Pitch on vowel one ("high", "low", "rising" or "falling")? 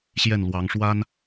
falling